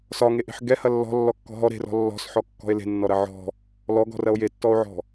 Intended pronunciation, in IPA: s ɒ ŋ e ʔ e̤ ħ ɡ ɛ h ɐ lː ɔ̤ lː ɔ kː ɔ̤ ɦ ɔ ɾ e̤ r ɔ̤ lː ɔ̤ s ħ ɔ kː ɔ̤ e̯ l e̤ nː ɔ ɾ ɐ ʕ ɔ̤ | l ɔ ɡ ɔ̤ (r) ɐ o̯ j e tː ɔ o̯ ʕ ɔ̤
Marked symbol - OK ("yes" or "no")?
yes